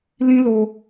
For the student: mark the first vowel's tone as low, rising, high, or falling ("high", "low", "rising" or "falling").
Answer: high